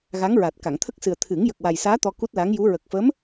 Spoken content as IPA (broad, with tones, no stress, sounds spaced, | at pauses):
ɣ a˧˥ ŋ ɹ a˨˩ t̚ k a˨˩˨ ŋ t̪ʰ ə˦˥ k̚ s ɨ˨˩ ə̯ t̪ʰ ɨ˨˩˦ ŋ j ə˨˩ k̚ w a˨˩ j s aː˧˥ t̪ ɔ˧ k u˦˥ t̚ l a˧˥ ŋ j u˧˥ ɹ ə˨˩ k̚ f ə˧˥ m